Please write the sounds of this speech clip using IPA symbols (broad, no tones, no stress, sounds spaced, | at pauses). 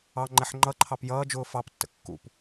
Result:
ɑ ŋ͡ǃ ɛ ħ ŋ͡ǃ ʌ ǃʰ ɑ p j ʌː d͡ʒ ʊː f ɑ p tː ə̰ kː ṵ p